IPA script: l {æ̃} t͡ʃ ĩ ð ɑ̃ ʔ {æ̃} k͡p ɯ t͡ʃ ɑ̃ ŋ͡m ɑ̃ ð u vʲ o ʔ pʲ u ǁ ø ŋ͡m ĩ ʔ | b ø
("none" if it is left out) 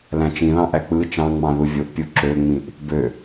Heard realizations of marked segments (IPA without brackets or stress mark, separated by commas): æ̃, æ